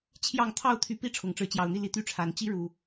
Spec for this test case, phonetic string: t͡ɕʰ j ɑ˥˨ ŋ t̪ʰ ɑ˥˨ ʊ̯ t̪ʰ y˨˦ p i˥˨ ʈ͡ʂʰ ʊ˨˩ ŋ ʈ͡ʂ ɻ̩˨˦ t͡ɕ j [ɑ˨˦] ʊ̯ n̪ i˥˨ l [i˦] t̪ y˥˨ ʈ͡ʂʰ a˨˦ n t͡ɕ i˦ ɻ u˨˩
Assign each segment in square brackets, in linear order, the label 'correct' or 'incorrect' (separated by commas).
incorrect, correct